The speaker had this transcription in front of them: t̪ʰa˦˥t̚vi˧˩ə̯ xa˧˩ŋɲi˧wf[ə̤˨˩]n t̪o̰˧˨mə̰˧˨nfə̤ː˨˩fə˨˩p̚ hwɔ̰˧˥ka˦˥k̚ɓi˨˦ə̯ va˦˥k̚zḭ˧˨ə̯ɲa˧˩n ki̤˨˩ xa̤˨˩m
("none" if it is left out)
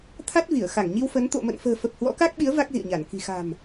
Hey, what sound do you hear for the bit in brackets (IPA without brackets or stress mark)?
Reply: ə˨˦